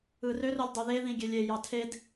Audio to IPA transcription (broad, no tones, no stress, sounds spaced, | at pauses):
ɯ r ø r o lʲ dˤ y ð e ð ĩ ɡʲ e lʲ e j ɑ tʰ e d